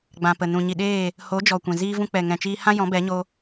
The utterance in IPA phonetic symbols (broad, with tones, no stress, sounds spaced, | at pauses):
ɡ͡b ã˨ p ə˨ n ũ˨ ɲ i˨ ɗ eː˦˨ | h o˨˦ d͡ʒ ɔ˨ kʷ ɛ̃˨ z iː˧ v ũ˧ k͡p ɛ˨ ŋ ɛ̃˨ t͡ʃ iː˧ h ã˦ j ɔ̃˨˦ b ɛ˨˦ ɲ o˧